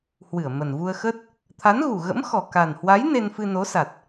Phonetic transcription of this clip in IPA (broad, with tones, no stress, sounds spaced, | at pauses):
h w ɨ˧˩ ə̯ m ə˨˩ n v u˧ ə̯ x ə˦˥ t̚ | t̪ʰ a˨˦ n ɣ u˨˩ ɣ ə̰˧˥ m x ɔ˨˩ k a˨˩ n h w a˨˦ j n e˧ n f ɨ˧ n o˨˦ s a˨˩ t̚